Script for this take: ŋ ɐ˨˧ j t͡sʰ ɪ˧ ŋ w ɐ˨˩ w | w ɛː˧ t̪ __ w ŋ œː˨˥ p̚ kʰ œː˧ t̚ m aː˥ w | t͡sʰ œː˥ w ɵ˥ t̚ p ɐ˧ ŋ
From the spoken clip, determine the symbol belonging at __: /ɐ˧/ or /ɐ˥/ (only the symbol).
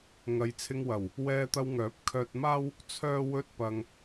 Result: ɐ˧